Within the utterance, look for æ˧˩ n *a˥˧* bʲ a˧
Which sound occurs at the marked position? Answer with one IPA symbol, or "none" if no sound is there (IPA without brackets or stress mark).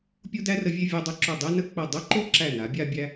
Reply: a˩˧